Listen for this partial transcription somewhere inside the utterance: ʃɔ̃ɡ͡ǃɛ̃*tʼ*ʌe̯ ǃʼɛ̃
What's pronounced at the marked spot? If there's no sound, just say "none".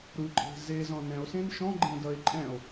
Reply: d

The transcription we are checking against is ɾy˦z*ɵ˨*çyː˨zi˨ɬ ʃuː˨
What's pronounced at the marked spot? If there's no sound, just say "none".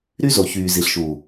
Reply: o˨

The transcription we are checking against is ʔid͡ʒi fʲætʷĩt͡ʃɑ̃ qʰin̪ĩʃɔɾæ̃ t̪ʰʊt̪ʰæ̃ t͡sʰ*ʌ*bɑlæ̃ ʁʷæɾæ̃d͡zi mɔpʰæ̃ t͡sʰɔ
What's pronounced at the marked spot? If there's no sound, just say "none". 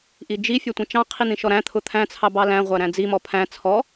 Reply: ɑ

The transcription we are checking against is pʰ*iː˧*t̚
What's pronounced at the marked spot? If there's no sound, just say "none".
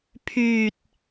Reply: yː˧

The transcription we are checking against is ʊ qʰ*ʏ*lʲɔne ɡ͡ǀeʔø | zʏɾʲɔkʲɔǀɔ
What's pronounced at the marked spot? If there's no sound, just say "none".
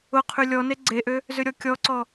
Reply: y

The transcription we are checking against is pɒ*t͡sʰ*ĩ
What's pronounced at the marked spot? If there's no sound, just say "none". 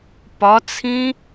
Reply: t͡sʰ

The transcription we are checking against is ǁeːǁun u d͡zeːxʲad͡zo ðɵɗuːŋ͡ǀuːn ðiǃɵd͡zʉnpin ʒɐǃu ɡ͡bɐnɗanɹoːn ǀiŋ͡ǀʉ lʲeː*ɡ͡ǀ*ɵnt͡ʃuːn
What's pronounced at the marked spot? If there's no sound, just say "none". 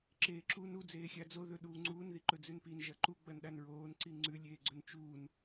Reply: ɡ͡ǀ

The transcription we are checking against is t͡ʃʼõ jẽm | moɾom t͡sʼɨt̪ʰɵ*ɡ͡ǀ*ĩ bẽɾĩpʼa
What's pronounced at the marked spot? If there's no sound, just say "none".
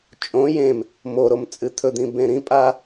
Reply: d̪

